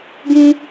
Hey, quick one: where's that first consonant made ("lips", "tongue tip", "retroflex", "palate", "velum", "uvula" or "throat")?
velum